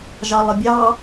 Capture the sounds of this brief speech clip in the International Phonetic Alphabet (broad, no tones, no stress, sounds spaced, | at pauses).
ʒ ɑ lˠ ɪ bʲ ɑ